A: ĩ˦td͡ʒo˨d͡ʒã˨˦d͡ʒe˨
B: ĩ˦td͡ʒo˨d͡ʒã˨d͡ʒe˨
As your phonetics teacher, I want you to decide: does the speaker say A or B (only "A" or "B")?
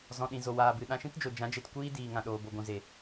A